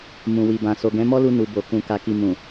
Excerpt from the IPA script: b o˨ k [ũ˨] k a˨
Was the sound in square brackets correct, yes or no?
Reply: yes